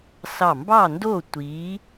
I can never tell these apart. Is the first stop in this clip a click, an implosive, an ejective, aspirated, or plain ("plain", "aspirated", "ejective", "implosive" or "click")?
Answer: plain